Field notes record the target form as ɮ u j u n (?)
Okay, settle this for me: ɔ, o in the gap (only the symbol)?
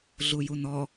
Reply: ɔ